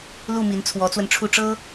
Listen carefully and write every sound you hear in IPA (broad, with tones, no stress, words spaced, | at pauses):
lu˥˩mi˧˥n t͡sʰwɔ˧˥t͡swə˧nʈ͡ʂʰu˥˩ ʈ͡ʂɤ˥